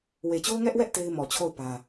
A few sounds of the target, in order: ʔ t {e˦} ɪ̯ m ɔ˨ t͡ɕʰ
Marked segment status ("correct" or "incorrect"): correct